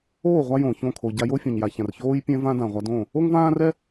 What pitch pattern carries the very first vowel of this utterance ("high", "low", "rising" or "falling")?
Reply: falling